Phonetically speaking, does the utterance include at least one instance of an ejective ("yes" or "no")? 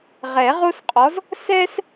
yes